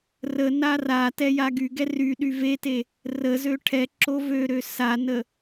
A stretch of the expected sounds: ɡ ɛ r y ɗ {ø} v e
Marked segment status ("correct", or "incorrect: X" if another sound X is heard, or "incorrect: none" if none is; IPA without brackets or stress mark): incorrect: y